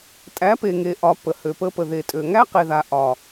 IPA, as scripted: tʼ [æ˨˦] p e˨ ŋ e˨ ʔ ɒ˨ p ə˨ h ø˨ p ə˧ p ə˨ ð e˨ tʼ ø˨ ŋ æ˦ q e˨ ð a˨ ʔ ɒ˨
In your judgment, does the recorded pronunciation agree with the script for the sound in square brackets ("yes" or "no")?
yes